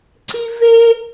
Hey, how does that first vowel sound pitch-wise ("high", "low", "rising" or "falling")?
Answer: high